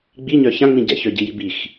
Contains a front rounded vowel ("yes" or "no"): yes